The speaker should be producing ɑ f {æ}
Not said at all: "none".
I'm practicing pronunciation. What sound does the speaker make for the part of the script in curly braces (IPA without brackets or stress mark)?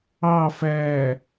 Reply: æ